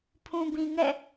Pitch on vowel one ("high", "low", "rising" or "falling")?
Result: low